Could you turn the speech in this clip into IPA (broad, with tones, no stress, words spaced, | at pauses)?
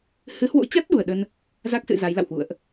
hɨ˨˦hwo̰˧˥t͡ɕa˦˥t̚ ɗu˧˩ə̯ɗə˧n | za˦˥k̚sɨ̰˧˨ za˨˦jla̰˧˨whwṵ˧˨ə̯ʔ